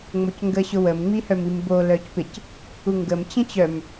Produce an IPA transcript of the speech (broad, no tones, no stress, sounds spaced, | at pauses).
ŋ͡m o c ŋ ɡ ə ɕ ʊ w ə m ŋ͡m i h œ m i m b o l œ c p ɪ c | u ŋ ɡ ə m t͡ɕ ə̃ t͡ɕ œ m